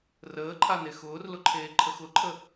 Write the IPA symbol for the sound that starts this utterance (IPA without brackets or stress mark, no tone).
r